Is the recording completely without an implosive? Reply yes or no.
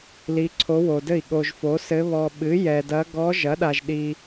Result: no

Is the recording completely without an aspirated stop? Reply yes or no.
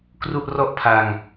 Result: no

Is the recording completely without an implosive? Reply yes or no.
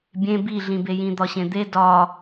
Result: yes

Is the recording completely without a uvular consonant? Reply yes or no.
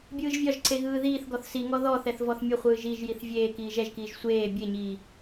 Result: no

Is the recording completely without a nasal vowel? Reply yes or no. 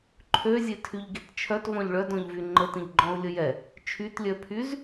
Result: no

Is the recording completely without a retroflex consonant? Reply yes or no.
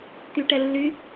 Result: no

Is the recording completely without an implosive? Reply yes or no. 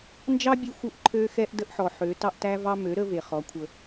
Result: yes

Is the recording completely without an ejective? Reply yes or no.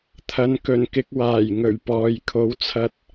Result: yes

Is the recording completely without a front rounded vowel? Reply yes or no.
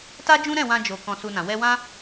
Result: yes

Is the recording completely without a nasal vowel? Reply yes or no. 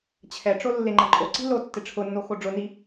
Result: yes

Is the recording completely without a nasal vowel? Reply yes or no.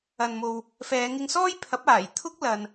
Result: yes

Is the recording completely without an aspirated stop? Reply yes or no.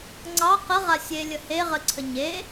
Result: no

